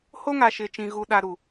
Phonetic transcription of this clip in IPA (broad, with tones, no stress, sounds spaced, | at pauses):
h o˦ ŋ a˨ ʃ ɪ˨ t͡ʃ ĩ˨ ɣ u˨ ɗ a˨ ɾ u˨